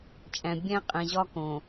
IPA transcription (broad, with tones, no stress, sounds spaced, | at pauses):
t͡ʃʼ æ̃˨ bʲ æ̃˦ qʼ ẽ˨ ʑ ɒ˦ k õ˨